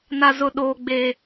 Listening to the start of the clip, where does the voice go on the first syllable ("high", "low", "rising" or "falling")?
high